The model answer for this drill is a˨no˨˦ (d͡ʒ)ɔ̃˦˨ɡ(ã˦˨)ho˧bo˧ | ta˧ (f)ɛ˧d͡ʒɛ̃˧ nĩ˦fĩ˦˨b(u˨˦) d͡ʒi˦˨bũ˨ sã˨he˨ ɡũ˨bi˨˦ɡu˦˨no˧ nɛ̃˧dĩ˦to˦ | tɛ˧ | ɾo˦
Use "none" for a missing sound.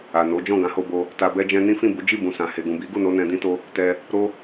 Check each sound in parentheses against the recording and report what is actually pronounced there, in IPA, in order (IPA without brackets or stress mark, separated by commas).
d͡ʒ, ã˨˦, b, u˨˦